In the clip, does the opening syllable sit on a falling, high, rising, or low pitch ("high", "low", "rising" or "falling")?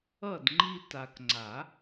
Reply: falling